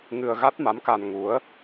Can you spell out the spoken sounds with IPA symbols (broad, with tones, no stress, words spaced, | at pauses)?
ŋɨ˧ə̯ ɣa˦˥t̚ma˨˦mka˧n ŋu˨˦ə̯